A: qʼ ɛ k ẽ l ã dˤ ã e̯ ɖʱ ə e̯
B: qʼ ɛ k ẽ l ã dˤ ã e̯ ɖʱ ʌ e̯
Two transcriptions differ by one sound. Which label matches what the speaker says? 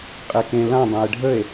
A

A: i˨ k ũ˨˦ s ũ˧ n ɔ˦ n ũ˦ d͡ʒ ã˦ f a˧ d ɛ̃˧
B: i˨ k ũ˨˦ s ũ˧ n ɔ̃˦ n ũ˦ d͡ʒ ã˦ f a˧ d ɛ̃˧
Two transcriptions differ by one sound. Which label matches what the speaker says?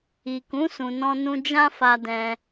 B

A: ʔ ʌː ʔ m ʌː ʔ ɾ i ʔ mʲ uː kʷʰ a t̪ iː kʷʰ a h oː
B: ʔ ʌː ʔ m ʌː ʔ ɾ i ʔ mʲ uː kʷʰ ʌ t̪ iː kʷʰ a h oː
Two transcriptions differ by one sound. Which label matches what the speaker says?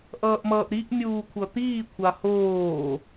B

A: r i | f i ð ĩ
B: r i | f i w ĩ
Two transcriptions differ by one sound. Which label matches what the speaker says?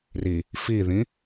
A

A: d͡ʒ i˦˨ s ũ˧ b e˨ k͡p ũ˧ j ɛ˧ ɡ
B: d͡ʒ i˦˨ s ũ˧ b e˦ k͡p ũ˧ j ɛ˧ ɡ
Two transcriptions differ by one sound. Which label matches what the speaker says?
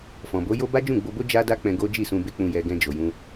B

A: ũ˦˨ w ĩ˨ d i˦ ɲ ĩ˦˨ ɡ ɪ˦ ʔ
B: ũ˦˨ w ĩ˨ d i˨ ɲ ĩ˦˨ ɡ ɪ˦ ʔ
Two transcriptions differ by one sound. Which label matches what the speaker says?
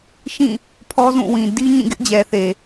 A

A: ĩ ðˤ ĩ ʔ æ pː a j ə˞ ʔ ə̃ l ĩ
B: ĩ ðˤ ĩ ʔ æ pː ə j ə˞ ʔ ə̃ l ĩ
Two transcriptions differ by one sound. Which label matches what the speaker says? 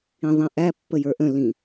B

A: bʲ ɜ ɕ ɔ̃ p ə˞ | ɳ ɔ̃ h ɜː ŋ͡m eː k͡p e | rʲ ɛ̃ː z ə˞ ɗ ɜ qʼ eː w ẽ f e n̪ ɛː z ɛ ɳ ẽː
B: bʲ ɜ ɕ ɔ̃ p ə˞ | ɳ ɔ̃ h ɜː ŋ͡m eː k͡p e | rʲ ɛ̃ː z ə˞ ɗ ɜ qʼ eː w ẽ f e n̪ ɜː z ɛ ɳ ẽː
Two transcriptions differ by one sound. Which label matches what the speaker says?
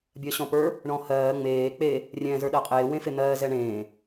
B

